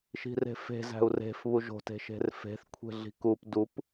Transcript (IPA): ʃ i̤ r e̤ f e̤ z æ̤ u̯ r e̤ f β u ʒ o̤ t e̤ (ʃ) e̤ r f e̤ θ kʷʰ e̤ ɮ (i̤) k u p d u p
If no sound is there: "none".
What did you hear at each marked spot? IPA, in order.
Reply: ʃ, i̤

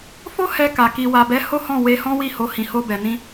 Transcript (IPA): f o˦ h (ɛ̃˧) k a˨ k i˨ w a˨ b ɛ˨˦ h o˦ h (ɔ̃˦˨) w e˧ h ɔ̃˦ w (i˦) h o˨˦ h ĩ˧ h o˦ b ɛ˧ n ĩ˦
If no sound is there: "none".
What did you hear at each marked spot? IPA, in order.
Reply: ɛ˧, ɔ̃˦˨, i˦˨

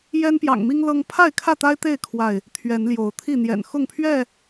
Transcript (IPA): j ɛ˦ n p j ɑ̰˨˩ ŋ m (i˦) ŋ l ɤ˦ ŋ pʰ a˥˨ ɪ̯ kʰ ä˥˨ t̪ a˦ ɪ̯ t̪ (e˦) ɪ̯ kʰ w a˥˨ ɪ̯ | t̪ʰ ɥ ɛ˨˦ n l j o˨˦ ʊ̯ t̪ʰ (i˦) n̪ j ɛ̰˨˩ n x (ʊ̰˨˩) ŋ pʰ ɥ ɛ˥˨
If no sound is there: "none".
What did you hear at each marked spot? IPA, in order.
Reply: i˦, e˥˨, i˥˨, ʊ˥˨

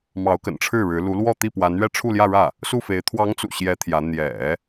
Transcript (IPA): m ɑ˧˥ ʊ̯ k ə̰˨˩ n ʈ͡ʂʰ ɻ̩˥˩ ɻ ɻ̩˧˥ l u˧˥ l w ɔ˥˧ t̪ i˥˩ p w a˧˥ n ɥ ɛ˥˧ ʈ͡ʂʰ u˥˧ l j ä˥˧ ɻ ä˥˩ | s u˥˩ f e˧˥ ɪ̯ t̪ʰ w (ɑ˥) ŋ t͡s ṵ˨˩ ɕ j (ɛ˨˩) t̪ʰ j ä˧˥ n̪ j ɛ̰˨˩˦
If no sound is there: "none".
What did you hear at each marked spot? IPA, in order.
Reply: ɑ˧˥, ɛ˧˥

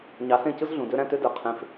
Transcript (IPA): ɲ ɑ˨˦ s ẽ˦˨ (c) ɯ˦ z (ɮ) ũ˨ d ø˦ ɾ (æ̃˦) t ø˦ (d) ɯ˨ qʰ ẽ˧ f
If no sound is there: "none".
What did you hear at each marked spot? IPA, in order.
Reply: c, ɮ, æ̃˦, d

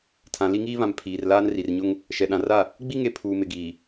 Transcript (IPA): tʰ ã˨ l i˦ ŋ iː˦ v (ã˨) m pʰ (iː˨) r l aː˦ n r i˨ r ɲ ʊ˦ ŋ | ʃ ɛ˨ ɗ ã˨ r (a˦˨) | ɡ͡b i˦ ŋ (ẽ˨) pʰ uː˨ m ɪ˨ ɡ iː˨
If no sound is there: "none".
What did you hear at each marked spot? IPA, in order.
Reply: ã˨, iː˨, a˦˨, e˨

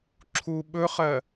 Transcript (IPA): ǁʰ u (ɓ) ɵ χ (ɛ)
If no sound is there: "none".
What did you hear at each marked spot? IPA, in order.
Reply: ɓ, ɜ

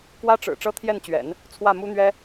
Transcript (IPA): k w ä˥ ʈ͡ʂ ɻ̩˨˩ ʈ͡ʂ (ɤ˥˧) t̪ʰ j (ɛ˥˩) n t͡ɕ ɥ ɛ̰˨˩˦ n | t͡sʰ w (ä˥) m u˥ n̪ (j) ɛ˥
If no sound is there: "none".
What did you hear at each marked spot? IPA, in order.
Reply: ɤ˥, ɛ˥˩, ä˥˩, ɥ

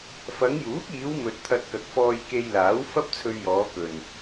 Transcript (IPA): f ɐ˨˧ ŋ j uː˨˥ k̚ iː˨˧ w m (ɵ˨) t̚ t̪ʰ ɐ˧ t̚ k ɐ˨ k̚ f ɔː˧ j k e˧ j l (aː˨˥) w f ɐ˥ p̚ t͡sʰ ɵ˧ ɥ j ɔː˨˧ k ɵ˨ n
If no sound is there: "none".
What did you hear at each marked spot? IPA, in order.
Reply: ɵ˨, aː˨˥

